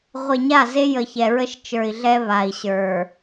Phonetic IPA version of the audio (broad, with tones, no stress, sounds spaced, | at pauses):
ʁʷ e˨ ɲ a˦˨ z e˦ j ə˨ ç ɛ˨ ɹ ə˦ ʃ t͡ʃ ə˞˨ i̯ ɮ ɛ˦ β a˨ i̯ ɕ ə˞˨